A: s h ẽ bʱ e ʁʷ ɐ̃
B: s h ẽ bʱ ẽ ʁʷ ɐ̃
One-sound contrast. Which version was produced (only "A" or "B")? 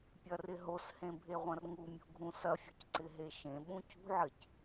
A